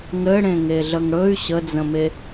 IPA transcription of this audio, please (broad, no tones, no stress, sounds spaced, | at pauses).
ŋ ɘ ɽ ẽ ŋ e ɮ ə ŋ ɽ ɵ y̯ ɕ ə d͡z ə̃ m e